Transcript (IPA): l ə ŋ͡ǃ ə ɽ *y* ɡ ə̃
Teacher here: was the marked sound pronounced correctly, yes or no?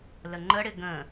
no